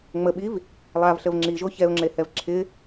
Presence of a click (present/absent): present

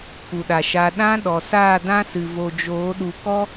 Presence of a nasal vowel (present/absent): present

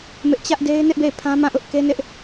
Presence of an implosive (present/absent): absent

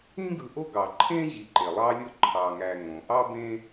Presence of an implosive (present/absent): absent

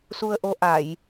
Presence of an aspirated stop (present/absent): absent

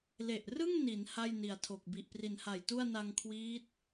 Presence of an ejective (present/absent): absent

